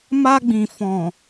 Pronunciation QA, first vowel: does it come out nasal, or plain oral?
oral